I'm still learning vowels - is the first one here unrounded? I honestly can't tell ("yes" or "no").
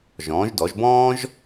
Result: no